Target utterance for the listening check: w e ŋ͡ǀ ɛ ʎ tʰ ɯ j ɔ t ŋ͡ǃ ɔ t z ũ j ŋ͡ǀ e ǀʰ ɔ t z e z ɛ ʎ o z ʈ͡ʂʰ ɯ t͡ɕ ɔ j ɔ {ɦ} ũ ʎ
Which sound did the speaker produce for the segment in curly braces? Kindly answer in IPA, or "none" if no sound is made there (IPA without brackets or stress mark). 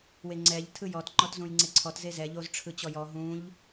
ɦ